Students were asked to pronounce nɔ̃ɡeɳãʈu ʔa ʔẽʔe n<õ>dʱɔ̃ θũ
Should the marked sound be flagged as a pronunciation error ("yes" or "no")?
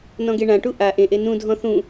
yes